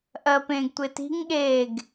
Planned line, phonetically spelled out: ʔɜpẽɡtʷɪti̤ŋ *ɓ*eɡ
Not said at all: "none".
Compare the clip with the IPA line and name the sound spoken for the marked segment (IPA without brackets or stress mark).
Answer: ɠ